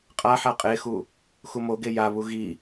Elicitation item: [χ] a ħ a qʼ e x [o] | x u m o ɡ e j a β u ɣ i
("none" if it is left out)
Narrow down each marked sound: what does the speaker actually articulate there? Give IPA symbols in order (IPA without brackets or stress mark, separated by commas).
qʼ, u